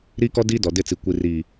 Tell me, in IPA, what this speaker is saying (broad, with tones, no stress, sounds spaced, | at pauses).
ɾ iː˦ k ɔ˦ d iː˦ d ɔ˨ d ɪ˦˨ t͡s i˨ kʷ i˨ r iː˨